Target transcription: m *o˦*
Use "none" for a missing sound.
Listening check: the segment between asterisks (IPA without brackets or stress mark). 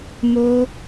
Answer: o˦